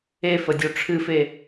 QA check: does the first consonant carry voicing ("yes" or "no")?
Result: no